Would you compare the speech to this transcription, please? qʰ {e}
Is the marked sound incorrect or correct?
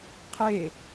correct